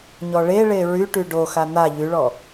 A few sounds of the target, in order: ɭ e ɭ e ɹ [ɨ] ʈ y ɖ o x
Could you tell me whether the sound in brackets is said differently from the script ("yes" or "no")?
yes